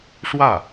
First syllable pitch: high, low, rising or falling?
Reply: falling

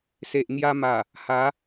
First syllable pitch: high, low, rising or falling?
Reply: low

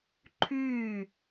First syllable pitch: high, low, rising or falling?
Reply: falling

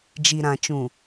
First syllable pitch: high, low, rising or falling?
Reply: low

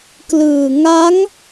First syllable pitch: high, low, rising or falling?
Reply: low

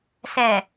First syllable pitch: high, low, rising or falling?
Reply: low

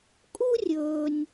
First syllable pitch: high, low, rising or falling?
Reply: high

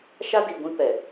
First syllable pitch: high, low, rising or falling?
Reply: high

